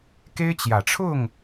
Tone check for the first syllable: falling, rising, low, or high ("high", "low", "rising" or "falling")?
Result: high